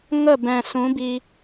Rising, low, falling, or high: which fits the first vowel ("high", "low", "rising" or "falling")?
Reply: falling